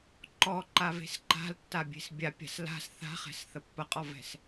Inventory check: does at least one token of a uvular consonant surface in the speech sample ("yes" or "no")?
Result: yes